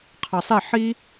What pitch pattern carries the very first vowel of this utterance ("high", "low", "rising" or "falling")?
low